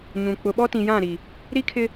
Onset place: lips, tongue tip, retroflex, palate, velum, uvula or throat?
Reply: palate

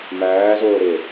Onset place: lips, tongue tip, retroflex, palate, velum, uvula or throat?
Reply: lips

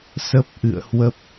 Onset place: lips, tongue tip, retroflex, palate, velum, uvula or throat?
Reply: tongue tip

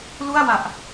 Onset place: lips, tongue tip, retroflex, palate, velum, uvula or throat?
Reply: tongue tip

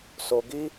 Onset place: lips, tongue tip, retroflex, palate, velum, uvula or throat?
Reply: tongue tip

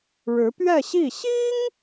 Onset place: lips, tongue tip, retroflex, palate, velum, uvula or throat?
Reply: retroflex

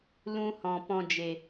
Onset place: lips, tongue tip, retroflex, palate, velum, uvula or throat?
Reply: tongue tip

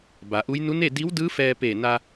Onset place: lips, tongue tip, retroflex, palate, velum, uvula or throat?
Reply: lips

